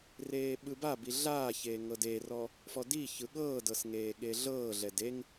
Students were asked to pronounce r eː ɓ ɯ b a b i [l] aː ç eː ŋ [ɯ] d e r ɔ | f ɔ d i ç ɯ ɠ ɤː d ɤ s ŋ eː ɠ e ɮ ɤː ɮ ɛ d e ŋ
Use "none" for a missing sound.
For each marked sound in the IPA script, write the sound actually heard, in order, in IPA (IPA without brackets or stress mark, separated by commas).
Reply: ɮ, ɤ